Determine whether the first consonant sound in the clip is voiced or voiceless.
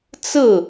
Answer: voiceless